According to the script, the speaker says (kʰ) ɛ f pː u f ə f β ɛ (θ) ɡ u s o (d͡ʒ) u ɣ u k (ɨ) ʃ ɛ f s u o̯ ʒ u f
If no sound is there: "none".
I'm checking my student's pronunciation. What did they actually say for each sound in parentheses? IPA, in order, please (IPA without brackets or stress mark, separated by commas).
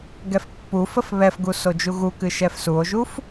ɡ, f, d͡ʒ, ɨ